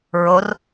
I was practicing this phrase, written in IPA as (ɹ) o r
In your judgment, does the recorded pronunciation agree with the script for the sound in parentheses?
yes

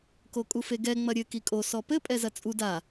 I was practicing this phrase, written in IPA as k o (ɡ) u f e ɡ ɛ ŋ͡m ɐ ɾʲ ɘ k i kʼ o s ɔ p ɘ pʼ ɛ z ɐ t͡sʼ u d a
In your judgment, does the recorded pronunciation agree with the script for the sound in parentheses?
no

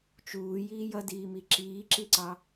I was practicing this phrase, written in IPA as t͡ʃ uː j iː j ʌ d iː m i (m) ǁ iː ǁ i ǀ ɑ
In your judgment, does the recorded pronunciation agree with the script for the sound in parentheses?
no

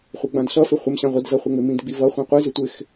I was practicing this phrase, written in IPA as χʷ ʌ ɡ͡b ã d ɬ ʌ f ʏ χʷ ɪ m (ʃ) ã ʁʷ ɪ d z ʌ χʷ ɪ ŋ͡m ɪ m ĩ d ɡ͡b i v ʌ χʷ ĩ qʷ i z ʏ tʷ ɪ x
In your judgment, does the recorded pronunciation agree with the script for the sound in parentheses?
no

